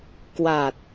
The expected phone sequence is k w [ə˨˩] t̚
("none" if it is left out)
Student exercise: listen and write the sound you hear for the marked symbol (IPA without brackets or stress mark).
a˨˩